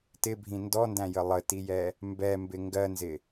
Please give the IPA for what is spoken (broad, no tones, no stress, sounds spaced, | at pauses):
t ɪ bʱ ĩ n d ɔ n d æ̃ j ə lˠ ə t i j ɛ | m b ɛ m b ɪ ŋ ɡ ɜ n z ɪ